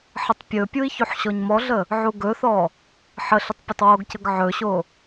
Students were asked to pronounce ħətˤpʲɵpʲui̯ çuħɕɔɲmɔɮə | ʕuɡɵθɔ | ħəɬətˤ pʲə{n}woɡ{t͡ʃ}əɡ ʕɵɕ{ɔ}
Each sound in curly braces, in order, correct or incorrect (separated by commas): incorrect, incorrect, incorrect